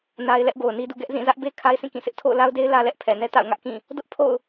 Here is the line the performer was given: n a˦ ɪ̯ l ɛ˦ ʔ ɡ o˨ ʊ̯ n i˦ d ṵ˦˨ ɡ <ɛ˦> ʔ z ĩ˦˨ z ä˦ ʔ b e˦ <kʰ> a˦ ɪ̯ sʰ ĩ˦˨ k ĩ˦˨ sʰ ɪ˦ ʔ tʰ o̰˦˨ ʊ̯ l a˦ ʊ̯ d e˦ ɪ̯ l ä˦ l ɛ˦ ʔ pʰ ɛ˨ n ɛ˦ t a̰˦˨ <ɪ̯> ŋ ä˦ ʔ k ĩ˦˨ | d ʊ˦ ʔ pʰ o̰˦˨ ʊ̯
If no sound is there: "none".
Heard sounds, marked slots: ɛ˦, kʰ, ʊ̯

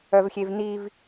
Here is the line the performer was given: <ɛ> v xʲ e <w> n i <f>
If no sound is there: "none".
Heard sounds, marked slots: œ, v, v

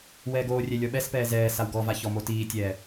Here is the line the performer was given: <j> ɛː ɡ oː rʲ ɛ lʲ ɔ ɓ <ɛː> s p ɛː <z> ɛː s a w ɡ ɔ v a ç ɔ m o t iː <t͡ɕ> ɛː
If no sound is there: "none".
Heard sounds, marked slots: w, ɛ, z, tʲ

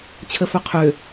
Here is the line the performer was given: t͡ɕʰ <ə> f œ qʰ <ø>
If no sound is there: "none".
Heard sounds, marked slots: ə, ø

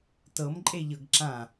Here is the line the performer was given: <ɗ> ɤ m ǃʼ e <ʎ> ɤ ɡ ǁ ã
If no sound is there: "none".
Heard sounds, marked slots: t, ʎ

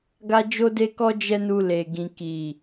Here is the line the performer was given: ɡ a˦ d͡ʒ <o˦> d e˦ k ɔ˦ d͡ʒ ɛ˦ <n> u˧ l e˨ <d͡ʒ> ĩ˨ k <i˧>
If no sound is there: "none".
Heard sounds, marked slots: o˦, n, ɡ, i˨

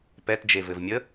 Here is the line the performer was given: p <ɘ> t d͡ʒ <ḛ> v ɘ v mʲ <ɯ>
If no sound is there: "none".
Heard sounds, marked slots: ɛ, e, ə

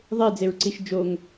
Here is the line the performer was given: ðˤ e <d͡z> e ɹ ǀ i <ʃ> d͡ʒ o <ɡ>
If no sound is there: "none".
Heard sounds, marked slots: d͡z, ʃ, ŋ

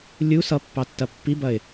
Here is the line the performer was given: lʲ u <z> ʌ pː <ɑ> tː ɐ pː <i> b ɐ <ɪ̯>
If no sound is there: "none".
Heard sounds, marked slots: s, ɑ, i, ɪ̯

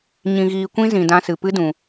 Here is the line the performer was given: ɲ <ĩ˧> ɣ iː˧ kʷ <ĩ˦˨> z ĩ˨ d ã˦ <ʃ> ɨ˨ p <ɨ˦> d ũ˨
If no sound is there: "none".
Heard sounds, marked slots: ĩ˧, ĩ˦, s, ɨ˦

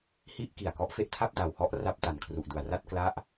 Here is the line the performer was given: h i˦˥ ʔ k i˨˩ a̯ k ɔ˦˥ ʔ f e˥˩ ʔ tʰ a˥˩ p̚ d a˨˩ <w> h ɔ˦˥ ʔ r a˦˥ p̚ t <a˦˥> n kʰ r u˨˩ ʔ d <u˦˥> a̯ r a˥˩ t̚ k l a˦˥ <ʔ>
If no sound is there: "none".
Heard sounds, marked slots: w, a˨˩, u˨˩, ʔ

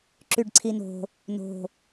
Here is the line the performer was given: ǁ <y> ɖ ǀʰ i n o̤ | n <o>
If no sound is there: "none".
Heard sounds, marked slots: y, o̤

